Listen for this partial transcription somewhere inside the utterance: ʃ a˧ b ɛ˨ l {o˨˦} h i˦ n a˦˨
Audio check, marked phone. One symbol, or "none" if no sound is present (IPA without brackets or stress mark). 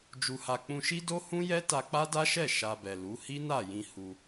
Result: u˨˦